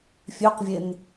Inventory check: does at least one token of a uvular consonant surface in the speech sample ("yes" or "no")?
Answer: yes